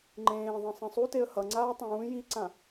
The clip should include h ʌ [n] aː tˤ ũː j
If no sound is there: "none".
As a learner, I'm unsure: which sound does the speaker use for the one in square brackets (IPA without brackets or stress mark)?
ŋ͡ǀ